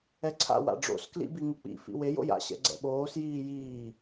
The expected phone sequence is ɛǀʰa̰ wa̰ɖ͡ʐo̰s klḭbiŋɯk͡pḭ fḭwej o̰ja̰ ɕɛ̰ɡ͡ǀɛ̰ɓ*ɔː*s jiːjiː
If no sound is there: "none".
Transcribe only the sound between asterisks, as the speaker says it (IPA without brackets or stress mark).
oː